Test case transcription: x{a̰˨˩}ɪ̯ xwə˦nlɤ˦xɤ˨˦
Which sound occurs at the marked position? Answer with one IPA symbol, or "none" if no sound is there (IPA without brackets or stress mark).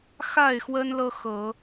a˥˨